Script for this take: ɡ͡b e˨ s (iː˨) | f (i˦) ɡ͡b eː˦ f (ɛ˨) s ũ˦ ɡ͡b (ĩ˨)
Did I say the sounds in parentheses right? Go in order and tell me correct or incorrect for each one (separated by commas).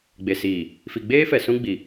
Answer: correct, incorrect, correct, incorrect